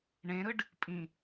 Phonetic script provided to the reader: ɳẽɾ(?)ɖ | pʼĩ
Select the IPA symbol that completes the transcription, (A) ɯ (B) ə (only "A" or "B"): A